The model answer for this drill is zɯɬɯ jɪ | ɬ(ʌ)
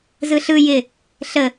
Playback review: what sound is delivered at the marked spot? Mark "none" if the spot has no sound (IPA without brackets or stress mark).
ə